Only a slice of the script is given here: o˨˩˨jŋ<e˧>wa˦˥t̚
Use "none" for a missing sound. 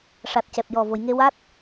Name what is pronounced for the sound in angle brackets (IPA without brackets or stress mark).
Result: e˧